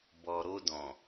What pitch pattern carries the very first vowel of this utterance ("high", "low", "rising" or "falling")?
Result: low